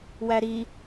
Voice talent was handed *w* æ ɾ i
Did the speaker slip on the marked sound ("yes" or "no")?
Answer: no